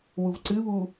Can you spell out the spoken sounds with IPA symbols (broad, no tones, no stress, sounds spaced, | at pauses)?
w u v ǀ ɨ β u